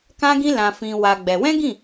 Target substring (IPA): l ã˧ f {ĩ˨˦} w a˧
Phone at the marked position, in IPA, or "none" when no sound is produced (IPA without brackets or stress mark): ĩ˧